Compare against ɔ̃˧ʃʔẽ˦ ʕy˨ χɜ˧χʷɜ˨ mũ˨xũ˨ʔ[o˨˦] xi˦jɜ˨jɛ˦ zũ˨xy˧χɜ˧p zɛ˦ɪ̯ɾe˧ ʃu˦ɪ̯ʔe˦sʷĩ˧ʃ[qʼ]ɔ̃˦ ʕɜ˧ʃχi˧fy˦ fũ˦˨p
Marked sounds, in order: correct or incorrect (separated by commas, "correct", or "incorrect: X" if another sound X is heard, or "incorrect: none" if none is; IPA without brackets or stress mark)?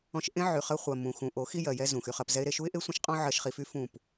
correct, correct